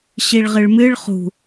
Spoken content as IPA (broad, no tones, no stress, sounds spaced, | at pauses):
ɕ i ɭ ʁ ɨ ɭ m ɨ ɭ χ ṳ